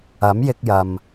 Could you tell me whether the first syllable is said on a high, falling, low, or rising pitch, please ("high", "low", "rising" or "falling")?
rising